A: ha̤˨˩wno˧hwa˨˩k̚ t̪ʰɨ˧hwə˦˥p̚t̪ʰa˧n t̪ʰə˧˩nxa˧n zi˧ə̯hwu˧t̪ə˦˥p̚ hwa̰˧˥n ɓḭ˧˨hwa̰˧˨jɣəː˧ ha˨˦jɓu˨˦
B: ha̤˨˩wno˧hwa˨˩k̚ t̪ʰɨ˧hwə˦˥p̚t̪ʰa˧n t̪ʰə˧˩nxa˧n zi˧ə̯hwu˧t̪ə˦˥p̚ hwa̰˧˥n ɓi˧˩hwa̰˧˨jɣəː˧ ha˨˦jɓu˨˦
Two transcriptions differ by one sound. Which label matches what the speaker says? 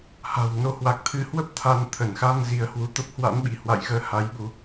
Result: B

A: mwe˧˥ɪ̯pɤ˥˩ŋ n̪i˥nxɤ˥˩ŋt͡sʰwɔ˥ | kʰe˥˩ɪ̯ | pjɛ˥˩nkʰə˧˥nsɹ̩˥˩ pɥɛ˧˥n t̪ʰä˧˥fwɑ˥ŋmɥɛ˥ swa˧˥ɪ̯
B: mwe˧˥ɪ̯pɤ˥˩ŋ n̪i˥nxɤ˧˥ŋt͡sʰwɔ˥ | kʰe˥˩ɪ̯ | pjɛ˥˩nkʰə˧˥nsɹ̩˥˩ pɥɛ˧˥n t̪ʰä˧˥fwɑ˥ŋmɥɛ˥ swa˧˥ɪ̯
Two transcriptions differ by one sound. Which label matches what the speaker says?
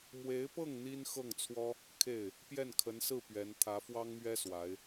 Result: A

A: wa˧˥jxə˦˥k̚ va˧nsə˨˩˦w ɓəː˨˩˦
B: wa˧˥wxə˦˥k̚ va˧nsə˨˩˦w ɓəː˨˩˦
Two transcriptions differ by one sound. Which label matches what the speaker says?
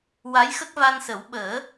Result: A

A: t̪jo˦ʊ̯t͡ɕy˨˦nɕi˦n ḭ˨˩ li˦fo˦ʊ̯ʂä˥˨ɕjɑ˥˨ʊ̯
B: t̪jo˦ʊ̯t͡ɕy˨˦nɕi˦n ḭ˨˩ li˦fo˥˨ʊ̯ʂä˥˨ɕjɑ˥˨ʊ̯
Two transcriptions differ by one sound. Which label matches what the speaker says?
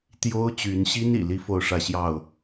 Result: B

